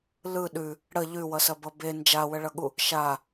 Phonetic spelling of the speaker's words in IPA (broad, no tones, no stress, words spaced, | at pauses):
lɯ ɗʉ | ɽə ʎʉwʌsɐbʌ be nd͡ʒawəɭʌɠu | ʃa